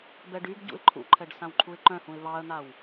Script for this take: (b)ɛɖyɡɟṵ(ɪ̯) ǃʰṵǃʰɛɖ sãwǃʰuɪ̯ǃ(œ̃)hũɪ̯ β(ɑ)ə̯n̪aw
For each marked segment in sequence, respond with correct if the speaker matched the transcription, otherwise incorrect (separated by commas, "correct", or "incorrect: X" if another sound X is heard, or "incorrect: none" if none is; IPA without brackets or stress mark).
correct, correct, correct, correct